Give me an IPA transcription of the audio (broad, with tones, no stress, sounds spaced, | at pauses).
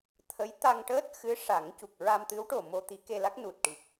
t̪ʰ ə˧˥ j t̪ a˧ ŋ ʈ əː˦˥ t̚ x ɨ˧˥ ʂ a˨˩˦ ŋ c u˨˩ k̚ ɹ a˧ m t̪ ɨ˧˥ w ʈ o˨˩ m o˧ t̪ i˧˥ k e˧ l a˦˥ k̚ n u˨˩ t̚ ʈ i˨˩ k̚